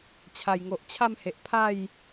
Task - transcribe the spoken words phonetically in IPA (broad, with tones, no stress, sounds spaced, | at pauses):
t͡ɕʰ a˨˩ j ŋ o˨ ʔ t͡ɕʰ a˥˧ m h e˨ ʔ pʰ a˥˧ j